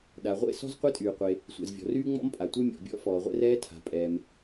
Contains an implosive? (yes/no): yes